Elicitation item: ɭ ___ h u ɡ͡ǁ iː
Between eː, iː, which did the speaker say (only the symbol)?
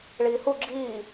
iː